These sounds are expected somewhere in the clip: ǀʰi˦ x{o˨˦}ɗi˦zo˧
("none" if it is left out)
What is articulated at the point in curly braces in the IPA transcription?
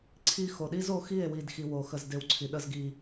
o˨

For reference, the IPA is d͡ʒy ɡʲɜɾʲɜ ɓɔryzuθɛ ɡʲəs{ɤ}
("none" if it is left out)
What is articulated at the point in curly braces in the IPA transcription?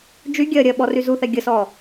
ɔ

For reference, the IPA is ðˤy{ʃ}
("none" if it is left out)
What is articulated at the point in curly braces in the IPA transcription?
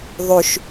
ʃ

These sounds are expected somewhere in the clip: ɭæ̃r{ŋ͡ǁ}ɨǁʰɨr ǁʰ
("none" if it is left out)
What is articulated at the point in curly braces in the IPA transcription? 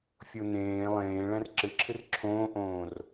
ǁ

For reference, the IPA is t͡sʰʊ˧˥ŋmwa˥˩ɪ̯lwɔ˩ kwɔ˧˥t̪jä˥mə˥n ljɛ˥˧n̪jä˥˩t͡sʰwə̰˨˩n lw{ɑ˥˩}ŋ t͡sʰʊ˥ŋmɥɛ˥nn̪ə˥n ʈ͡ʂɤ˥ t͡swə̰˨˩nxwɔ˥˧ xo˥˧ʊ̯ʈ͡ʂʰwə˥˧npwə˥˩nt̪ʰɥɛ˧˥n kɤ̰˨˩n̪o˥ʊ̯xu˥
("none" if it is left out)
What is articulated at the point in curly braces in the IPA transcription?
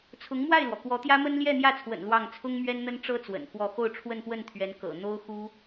ɑ˥˩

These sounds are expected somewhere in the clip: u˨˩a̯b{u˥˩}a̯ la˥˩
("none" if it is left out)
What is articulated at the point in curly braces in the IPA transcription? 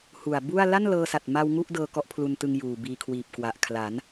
u˥˩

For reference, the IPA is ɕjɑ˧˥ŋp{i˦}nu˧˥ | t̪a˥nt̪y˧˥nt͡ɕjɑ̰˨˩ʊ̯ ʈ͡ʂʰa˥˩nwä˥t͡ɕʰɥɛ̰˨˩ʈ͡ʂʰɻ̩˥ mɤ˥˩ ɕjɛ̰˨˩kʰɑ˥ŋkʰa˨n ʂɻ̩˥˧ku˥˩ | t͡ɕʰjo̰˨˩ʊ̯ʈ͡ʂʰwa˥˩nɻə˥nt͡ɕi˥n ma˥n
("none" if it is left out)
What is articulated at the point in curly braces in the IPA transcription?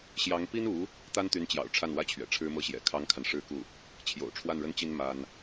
i˥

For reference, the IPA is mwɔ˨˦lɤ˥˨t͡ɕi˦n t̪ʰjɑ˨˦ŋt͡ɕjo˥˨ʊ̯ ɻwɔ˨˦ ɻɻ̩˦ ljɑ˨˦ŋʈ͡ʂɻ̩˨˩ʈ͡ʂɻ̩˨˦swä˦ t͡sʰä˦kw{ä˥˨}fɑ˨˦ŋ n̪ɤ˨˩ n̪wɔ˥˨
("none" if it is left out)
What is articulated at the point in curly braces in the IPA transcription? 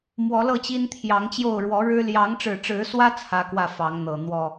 ä˥˨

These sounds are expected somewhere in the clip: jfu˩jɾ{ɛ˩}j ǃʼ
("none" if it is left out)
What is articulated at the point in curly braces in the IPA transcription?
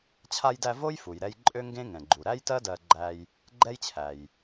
ɛ˧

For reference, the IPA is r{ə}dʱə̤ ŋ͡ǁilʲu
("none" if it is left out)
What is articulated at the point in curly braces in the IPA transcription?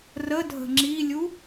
ə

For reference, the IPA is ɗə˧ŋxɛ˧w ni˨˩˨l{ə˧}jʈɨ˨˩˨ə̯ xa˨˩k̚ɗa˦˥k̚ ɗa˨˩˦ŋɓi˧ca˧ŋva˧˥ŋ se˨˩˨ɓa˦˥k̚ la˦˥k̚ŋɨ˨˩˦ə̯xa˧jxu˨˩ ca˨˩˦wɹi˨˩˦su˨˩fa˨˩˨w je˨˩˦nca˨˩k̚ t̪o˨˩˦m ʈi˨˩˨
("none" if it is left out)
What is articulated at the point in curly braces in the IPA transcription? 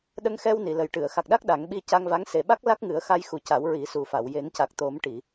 ə˨˩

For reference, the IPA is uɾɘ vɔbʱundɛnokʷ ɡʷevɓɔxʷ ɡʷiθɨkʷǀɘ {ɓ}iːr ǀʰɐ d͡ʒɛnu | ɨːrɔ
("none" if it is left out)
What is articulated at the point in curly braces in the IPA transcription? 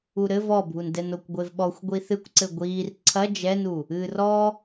ɡʷ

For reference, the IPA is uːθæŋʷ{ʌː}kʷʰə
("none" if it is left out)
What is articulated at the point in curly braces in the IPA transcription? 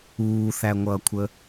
ʌː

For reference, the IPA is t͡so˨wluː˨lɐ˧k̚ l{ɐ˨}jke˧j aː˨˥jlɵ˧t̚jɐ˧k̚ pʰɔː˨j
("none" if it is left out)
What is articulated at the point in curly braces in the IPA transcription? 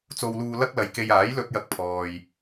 ɐ˨˧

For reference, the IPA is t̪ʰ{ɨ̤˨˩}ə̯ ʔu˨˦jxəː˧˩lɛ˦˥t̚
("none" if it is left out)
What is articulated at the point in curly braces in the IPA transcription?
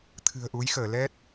ɨ̤˨˩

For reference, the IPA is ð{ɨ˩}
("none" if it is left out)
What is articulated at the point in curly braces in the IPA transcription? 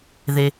e˩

